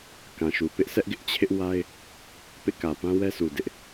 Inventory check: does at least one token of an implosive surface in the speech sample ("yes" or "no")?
no